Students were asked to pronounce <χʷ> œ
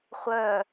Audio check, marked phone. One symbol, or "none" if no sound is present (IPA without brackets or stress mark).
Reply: χʷ